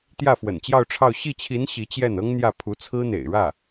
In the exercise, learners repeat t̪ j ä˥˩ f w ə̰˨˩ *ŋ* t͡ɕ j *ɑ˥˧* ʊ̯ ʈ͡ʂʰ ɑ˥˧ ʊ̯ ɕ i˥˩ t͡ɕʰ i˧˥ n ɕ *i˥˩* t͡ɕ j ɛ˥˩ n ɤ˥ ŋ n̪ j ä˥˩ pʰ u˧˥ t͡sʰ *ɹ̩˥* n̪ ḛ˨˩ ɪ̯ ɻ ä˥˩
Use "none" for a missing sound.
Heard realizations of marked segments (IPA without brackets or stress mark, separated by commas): n, ɑ˥˧, i˧˥, ɹ̩˥